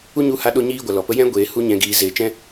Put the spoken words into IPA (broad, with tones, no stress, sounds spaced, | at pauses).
u˦ ɲ u˧ h a˧ ɗ o˦ ɲ iː˦ ɡʷ a˨ l ɔ˨ p ə˧ j ɛ̃˦ ɡʷ eː˨ h u˧ ɲ ɛ̃˨ ɡ iː˨ z eː˨ t͡ʃ ɛ̃˦